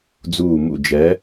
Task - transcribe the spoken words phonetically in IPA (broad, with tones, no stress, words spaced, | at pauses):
d͡zuː˧˩mṵ˧˩d͡ʒɛ˨˥